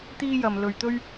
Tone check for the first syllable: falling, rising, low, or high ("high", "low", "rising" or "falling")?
high